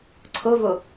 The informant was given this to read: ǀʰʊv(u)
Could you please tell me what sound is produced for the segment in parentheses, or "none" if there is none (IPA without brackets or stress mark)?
ʊ